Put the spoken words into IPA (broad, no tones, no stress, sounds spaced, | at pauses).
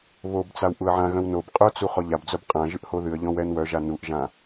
β o b t͡s a w ʔ u ə̯ ʕ ã ɣ œ̃ w n o b qʼ œ t͡s u χ ɔ ʎ a b d͡z œ b qʼ ã ʒ ɨ ʔ h o ð ɨ ə̯ ʎ ɔ̃ w ɛ n w œ ʒ a n u ʔ ʒ ã